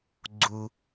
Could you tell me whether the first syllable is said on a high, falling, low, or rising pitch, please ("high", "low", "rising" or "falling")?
low